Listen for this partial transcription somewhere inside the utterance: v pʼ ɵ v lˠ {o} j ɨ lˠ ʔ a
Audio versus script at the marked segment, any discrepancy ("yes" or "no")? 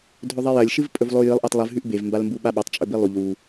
no